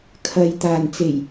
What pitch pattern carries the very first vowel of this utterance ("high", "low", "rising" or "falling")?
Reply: low